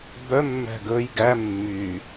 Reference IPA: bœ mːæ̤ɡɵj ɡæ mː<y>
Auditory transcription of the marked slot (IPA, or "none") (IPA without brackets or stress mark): y